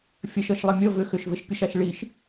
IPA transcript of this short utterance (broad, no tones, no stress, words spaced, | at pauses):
fʲəʃʌʃlˠɪ mʲʌ vʏ xʏʃvɪʃpʲʌʃaʃ ɭiʃ